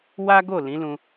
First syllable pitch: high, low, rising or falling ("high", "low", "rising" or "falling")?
high